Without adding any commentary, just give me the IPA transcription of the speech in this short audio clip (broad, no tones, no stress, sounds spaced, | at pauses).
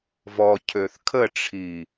v ɔ cʰ ø θ kʰ ə ʈ͡ʂʰ i